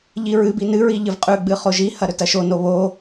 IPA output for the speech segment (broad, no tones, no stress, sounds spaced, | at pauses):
ʎ i ɹ ɨ b i n ɨ ɹ i ʎ ɨ v qʼ ʉ ɡ͡b ɨ χ o ʒ i h ɐ ɾ ɵ t ɐ ʃ o n o β o